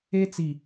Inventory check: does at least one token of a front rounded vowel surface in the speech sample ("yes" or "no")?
no